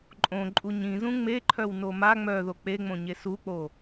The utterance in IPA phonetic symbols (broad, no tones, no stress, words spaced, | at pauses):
ǃʼõǃʼu ɲĩzũ ŋ͡meǃʰœwno ma ŋ͡mœðo k͡peŋ͡mõɲe suk͡po